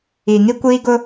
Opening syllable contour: low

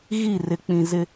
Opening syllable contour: falling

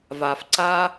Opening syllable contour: low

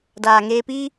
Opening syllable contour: low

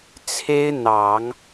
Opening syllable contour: high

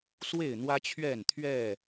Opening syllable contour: falling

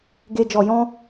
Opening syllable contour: low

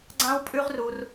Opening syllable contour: high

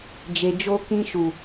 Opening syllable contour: low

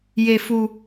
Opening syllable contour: high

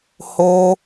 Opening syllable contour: high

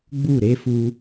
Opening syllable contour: falling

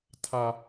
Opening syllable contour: low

